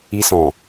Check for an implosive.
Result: absent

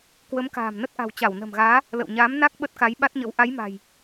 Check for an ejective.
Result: absent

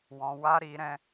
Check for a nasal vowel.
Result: present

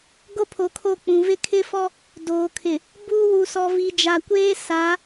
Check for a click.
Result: absent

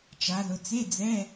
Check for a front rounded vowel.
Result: absent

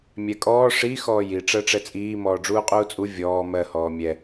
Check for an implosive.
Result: absent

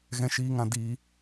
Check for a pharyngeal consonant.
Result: absent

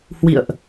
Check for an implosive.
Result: absent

